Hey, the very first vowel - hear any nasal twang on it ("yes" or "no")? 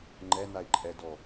no